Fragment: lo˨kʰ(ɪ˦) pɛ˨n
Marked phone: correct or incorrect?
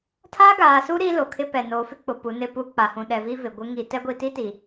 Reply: correct